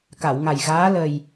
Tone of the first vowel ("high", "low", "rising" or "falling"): low